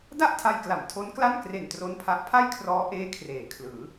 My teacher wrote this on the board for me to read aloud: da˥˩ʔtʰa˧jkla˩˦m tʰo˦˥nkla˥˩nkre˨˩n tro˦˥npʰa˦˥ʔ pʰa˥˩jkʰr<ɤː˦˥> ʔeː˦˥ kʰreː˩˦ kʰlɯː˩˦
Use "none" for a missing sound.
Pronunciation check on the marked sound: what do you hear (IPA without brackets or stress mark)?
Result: ɔː˦˥